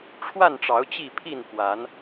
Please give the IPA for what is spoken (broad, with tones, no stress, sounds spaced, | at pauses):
ʈ͡ʂʰ w a˥˨ n ʈ͡ʂ ɑ˨˦ ʊ̯ t͡ɕ i˥˨ pʰ i˥˨ n f w a˨˦ n